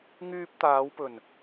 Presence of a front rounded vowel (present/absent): present